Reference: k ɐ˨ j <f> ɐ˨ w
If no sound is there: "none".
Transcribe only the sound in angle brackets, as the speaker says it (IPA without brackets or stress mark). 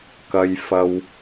f